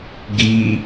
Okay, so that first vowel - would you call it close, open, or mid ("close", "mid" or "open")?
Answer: close